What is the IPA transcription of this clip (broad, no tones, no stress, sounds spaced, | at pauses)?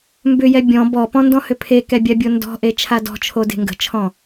m b ʏ j ɛ bʲ ɔ̃ b ɔ p ɔ̃ n d ɔ̃ h ʏ pʰ e k ɛ bʲ a bʲ o n d ɔ̤ ʔ e t͡ʃʰ a d ɔ̤ t͡ʃʰ o d e̤ ŋ ɡ ə̤ t͡ʃʰ ɔ̃